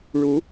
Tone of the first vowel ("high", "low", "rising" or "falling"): rising